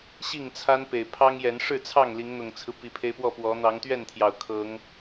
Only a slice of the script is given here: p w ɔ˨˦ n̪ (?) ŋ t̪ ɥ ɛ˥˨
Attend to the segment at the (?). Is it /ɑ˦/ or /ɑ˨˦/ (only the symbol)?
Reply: ɑ˨˦